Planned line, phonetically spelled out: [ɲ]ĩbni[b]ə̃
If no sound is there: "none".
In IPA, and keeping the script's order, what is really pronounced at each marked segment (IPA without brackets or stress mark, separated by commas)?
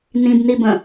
n, b